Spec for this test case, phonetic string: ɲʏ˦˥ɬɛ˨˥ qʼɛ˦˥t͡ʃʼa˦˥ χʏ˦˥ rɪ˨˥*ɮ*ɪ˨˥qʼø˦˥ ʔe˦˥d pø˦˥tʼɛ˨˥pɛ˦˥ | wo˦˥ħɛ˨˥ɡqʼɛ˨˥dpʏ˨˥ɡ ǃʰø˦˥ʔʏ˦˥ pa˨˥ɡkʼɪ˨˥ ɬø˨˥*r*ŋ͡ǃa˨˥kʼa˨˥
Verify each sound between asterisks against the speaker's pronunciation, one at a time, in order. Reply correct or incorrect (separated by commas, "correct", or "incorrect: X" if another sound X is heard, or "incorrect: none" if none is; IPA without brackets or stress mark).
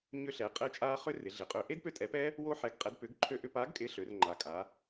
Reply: correct, correct